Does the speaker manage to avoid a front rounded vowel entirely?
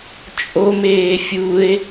yes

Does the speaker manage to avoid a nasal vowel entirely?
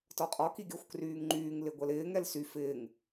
yes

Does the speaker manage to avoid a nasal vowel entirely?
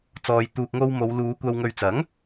yes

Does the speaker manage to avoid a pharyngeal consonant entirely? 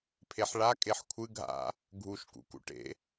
no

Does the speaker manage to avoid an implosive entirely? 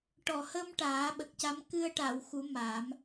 no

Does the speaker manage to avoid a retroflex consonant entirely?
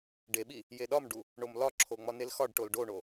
no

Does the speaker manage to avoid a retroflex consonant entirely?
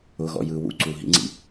yes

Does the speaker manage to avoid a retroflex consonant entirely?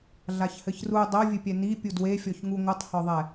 yes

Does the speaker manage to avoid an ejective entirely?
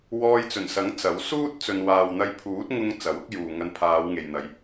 yes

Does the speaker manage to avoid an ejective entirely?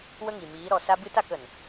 yes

